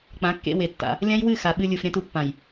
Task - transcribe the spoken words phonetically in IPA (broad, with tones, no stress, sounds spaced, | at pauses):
k͡p ã˨˦ kː ḛ˧ w e˨ tː a̰˧ | lʲ ã˦ j w ɨ˦˨ x a˨ ɓ ɨ˧ lʲ u˨ f ɾʲ ã˧ t u˨ pː ã˨ j